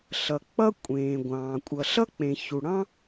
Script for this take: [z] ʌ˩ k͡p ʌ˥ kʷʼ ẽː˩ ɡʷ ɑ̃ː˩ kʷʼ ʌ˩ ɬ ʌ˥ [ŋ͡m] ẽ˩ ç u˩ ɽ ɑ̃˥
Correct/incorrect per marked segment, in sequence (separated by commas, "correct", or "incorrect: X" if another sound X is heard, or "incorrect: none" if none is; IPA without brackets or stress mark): incorrect: ɬ, incorrect: k͡p